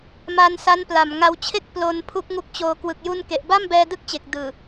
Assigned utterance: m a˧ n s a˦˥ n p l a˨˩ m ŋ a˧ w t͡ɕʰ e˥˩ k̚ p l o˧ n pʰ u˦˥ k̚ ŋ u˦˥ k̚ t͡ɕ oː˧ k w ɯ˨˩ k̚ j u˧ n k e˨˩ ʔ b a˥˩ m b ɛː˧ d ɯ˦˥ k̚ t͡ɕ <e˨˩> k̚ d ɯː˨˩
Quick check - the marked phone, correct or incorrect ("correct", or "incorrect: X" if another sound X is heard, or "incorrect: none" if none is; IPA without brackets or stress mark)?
correct